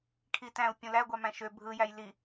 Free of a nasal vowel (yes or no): no